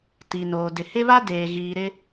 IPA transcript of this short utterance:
t i˨ n oː˨ d ɪ˨ h ɪ˦ β a˦ d eː˨ ɣ iː˨ ɾ ɪ˦

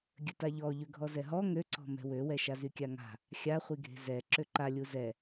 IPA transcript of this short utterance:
ɡʲ ə t a ʎ ɔ ʎ ø ɡʱ ɔ z ɛ ɦ ɔ ŋ ø ǀ ɔ̤ m ɛ̤ w ø w ɛ ʃ a z y kʲ a ŋ a̤ | xʲ a χʷ i ɡʱ e̤ z ɛ ǁ ø ǃ a lʲ u z ɛ

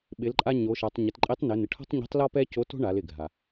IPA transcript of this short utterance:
ɓ ɪ˩˧ l ǃʼ a˧ ɲ o˩˧ ʃ a˩˧ tˤ ɲ ɪ˩˧ t ǃʼ e˧˥ tˤ n ɪ˩˧ n ɪ˩ ʈʰ ɔ̤˥ tˤ ɲ ɔ̤˧˥ tˤ l ɔ˥ p ɛ˥ c o˧˥ t o̤˥ ɳ a˩˧ l ɪ˩ ɡʱ a˩

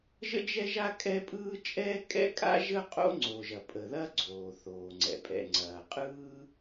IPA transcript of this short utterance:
ʒ ə̰˥ d͡ʒ ɛ˥ ʒ a˥ kʼ ɛ˥ pʼ ɯː˥ t͡ʃʼ ɛː˥ kʼ ɛ̰˥ kʼ a̰˥ ʒ ə˥ qʼ o̰˥ ŋ͡ǀ o˩ ʒ ɐ˩ pʼ ə˩ ð ɐ˥ ɡ͡ǀ oː˩ θ oː˩ ŋ͡ǀ ɛ̰˩ pʼ ɛ̰˩ ŋ͡ǀ ɐː˩ qʼ ɯː˥

